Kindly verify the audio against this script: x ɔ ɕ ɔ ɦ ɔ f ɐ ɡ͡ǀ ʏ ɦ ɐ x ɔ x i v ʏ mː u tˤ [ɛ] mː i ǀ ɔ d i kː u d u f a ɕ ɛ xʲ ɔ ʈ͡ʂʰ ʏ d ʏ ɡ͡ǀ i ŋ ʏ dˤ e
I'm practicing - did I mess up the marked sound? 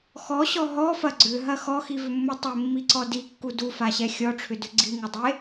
yes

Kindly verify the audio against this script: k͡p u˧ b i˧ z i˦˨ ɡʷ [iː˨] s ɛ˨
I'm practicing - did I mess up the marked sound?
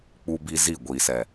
no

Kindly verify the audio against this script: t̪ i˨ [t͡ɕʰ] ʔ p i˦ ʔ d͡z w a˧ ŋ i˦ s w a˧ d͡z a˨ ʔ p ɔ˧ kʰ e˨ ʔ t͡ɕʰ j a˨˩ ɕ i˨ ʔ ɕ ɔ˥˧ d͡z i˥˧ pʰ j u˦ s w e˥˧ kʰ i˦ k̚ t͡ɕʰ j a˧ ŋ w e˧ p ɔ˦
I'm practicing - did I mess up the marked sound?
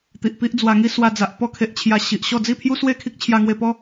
yes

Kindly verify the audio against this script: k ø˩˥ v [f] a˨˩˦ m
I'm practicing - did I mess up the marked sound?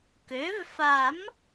no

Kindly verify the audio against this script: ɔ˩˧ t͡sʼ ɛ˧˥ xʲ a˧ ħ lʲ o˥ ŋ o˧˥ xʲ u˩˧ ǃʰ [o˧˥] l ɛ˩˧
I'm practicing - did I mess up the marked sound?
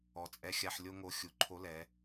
no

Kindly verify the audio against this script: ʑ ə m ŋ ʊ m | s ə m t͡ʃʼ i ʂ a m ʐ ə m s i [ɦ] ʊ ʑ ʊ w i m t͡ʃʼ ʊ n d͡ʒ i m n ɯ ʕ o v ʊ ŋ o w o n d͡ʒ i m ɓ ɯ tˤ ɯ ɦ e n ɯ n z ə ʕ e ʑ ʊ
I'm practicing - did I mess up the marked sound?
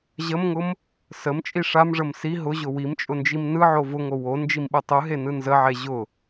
no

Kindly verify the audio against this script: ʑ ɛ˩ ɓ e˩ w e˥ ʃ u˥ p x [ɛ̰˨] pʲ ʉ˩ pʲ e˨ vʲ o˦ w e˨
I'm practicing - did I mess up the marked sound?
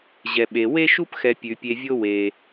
yes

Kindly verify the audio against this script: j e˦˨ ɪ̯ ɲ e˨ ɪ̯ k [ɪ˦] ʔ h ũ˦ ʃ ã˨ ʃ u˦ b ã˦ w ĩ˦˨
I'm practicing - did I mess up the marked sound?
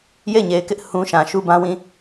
no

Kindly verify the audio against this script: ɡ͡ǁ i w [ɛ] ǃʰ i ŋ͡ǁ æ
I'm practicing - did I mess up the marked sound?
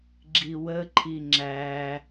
yes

